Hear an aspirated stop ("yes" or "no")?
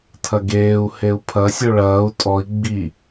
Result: yes